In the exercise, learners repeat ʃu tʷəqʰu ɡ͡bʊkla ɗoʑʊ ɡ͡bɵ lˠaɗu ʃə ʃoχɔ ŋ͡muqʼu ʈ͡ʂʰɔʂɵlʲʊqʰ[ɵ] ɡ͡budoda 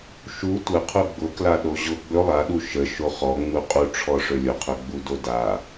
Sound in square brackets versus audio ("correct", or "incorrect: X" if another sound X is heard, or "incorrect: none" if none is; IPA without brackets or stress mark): correct